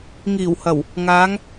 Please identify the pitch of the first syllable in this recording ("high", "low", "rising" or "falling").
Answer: low